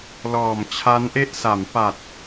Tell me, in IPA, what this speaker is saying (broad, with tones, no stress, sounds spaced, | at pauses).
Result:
l ɔː˨˩ m t͡ɕʰ a˦˥ n ʔ e˥˩ ʔ s a˩˦ m p a˨˩ t̚